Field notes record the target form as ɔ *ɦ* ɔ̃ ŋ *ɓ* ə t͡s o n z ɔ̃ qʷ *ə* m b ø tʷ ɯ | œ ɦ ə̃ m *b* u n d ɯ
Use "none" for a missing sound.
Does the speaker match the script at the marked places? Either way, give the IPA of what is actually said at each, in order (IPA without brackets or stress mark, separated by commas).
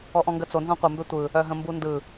ʔ, ɡ, ə, b